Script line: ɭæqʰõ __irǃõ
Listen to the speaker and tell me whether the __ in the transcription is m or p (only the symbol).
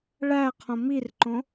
m